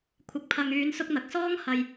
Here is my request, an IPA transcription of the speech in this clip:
kʷʰ ɪ˨ k̚ pʰ ɐ˨ ŋ yː˨˧ n s ʊ˧ k̚ n̪ ɐ˨ k̚ s ɔː˥ ŋ h ɐ˧ j

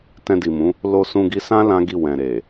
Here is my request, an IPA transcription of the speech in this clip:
t ɛ̃˧ d i˨ m ũ˨˦ | l o˧ s ũ˧ ɡ i˧ s ã˦ l ã˦ ɡ i˦˨ w ɛ̃˨ ɾ e˨

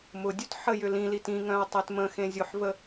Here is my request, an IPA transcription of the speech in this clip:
m ʊ dʲ ʉ t ħ ə j ʏ l ĩ l i t ĩ ŋ œ̃ ʊ̯ tˤ e t m ə̃ x ẽ zʲ ʊ ħ v ə

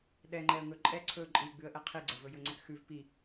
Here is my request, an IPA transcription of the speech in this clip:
ɗ ɛ ŋ͡ǃ ɛ ə̯ ŋ ɵ ǃʼ ɛ ǀʰ ɵ ǃʼ i ɡ͡b ʉ ə̯ ʔ ɛ qʰ i ɡ͡ǀ ɐ v ɵ j ɵ ŋ͡ǀ ɛ k x ʉ v p i

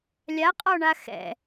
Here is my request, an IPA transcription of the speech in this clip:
lʲ a qʼ ɔ ɳ a x ɛ̰

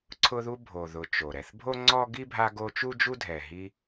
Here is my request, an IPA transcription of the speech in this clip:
ǀʰ ʊ˦ ð u˦ bʱ o˨ ð ʊ˨ t͡ʃ o˩ ɾ ɛ˨ θ bʱ o˥ ŋ͡ǀ ɔ˥ ɡ i˥ bʱ a˦ ɡ o˦ t͡ʃ u˥ d͡ʒ u˥ dʱ ɛ˨ ɦ i˦

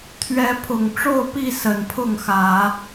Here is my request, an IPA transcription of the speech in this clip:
t̪ʰ ɥ ɛ˨˦ pʰ ʊ˨˩ ŋ ʈ͡ʂ o˥˨ ʊ̯ p i˥˨ s ə˨˩ n pʰ ʊ˥˨ ŋ x ä˨˦

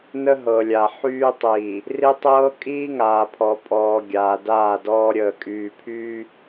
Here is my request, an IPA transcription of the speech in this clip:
n ə˦ ɦ ɤ˨ lʲ a˨ ħ yː˦ tˤ iː˨ | r i˦ tˤ ɤː˦ kʼ iː˦ ŋ aː˨ pʰ ɔ˨ pʼ ɔː˨ ɡʲ aː˨ d aː˦˨ d ɔː˦ ɾʲ əː˨ kʼ yː˨ pʰ yː˦

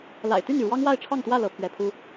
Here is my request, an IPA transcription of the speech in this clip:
l a̰˨˩ ɪ̯ t̪ y˥˨ n y˩ ɻ w ɑ˦ ŋ w a˥˨ ɪ̯ ʈ͡ʂʰ ɑ˥˨ ŋ t̪ w ä˥˨ l ɤ˨˦ pʰ ɥ ɛ˨˦ pʰ u˦

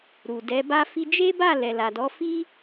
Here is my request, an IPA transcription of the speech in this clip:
ɾ u˨ d ɛ˨˦ b a˦ f i˧ d͡ʒ e˦ b a˦˨ l ɛ˨ l a˨ d ɔ˨˦ f i˦

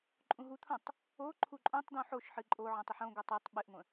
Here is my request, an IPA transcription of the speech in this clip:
ǃʼ ũ ɦ u t̪ʰ õ tˤ | o ǃʰ u ǃʼ õ tˤ d̪ ũ ħ o ʃ ħ ɨ ǃʼ o ʕ ə̃ tˤ ɨ ħ õ ɡʷ ɨ tˤ o tˤ ɓ ɨ ʔ ŋʷ ə̃

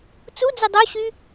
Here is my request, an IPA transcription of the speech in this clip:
t͡s u d͡z ɯ dˤ o ɕ y

